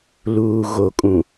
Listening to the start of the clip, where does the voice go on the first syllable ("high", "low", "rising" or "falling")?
low